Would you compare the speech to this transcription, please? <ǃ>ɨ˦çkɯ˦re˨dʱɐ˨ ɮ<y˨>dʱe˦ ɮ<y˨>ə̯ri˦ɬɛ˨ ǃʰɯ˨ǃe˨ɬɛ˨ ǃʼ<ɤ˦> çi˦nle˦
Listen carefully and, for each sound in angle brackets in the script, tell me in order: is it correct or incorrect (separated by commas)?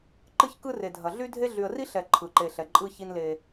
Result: correct, incorrect, correct, incorrect